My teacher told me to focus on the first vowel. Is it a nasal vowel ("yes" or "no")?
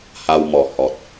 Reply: no